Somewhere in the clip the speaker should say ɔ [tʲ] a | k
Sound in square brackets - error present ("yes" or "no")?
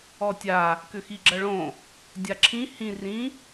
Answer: no